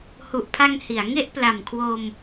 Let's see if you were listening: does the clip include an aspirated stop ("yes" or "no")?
yes